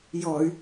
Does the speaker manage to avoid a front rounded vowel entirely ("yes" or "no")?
no